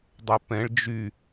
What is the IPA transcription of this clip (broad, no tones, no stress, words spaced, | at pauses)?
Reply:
dˤœpɛ̃ɭ d͡ʒy